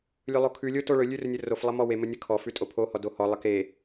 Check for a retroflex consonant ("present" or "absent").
present